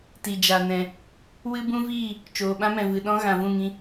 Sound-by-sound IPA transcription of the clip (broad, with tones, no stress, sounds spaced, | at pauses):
t i˨ d͡ʒ a˨ n ɛ̃˨ | w ɨ˦ b ũ˦ v iː˦˨ | t͡ʃ oː˨ ɓ ã˦ m ɛ̃˨ v ɨ˨ ɗ ɔ̃˦ ɣ ã˨ v ũ˦˨ ŋ ĩ˧